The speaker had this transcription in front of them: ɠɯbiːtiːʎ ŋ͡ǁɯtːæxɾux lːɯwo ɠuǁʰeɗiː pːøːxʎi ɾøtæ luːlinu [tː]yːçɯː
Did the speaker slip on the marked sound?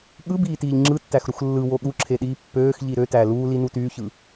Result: yes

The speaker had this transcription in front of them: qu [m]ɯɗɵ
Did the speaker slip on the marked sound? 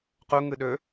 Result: yes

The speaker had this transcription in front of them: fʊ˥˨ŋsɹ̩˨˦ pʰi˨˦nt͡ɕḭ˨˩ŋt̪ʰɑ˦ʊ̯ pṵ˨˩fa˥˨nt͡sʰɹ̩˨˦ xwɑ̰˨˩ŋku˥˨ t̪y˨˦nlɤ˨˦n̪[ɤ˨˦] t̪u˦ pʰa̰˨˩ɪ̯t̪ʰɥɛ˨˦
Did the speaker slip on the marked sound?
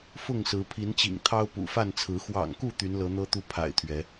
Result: yes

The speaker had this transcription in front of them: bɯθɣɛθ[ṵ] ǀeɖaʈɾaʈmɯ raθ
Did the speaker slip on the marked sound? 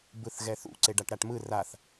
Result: no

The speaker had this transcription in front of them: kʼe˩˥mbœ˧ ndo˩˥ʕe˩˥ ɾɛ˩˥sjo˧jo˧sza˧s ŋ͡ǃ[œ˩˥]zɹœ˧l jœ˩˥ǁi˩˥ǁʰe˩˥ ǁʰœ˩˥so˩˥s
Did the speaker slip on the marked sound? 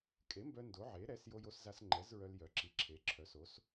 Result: yes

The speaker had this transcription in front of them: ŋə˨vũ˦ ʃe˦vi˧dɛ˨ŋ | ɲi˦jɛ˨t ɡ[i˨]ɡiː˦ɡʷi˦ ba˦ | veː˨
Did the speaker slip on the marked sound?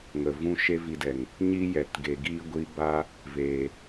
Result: yes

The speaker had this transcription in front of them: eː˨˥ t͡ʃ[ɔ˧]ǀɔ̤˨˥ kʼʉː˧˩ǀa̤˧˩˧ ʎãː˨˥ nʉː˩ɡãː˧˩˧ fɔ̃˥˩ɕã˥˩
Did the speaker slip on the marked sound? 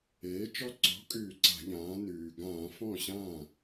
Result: no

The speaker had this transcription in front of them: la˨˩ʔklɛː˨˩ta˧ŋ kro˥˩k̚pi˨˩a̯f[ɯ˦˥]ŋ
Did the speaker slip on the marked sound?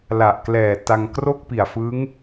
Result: no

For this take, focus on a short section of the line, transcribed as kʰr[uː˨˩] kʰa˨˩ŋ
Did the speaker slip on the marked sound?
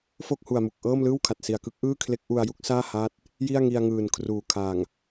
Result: no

